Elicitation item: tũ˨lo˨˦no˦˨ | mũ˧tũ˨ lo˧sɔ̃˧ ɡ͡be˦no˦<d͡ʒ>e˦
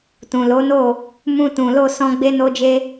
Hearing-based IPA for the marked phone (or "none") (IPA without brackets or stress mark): d͡ʒ